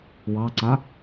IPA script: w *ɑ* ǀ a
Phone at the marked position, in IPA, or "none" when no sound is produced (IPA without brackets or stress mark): ɑ